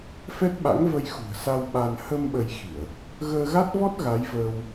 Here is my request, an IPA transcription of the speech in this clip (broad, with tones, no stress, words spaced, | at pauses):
fɛ˦˥t̚ɓa̰˧˥ŋ və˧jxṳ˨˩ə̯sa˧w ɓa˧n hə˧m ɓə˧jxi˧˩˨ə̯ | ɣəː˧ɣa˦˥t̚vɔ˦˥t̚ ɣa˨˦jvəː˧w